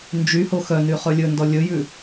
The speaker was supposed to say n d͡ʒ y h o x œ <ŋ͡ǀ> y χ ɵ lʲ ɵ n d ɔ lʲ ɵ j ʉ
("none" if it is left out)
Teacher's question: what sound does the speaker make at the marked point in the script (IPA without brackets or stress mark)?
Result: n